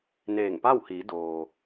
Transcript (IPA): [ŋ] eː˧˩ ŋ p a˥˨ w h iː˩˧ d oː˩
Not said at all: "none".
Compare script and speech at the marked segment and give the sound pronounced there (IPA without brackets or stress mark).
n